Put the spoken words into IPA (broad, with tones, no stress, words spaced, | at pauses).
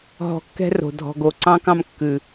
ɦɔ̤˨kːɛ̤˧ ro̤˨dʱɔ̤˧ɡo˧ ǀɑ̃˧kɑ̃˧m kːʉ˨